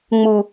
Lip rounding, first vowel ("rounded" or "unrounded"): rounded